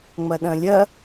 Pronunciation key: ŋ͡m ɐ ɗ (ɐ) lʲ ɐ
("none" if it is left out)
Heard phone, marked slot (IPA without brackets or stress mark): ɐ̃